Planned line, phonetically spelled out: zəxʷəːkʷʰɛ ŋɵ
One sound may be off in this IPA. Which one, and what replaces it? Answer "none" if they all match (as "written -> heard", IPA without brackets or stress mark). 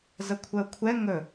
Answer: xʷ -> kʷʰ